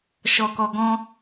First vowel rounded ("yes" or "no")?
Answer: yes